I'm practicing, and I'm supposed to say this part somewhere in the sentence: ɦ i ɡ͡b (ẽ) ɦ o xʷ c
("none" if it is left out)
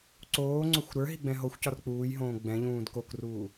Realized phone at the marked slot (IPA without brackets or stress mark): ɛ̃